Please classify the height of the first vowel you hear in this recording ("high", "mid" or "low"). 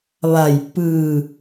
low